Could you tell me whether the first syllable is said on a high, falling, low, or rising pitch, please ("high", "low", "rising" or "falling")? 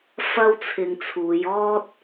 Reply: high